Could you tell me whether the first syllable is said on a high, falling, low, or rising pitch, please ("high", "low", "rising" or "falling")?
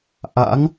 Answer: rising